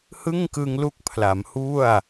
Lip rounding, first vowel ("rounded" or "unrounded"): unrounded